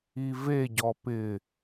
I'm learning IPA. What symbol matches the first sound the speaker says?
i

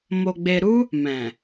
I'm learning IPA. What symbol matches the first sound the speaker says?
m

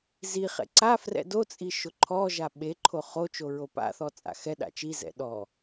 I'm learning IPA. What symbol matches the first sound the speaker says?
z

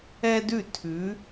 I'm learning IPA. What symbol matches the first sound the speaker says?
ɛ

